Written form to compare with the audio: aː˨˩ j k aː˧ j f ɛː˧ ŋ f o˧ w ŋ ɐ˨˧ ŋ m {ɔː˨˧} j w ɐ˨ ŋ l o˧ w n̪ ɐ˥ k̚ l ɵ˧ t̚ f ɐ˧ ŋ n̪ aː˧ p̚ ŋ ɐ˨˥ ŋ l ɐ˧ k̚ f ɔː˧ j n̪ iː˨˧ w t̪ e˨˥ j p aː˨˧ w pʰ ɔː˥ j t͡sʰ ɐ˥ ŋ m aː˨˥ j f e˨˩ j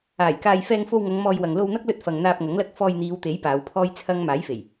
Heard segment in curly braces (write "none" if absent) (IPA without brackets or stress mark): ɔː˧